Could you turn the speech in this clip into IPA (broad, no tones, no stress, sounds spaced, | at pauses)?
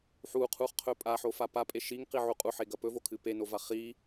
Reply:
ħ u qʰ u χ qʰ ɵ pʼ a ħ o f a p a pʼ e ʃ i ŋ q i ʕ u qʼ u ħ e ɡ ɐ p ɵ v o kʰ ɨ p e n o v a χ i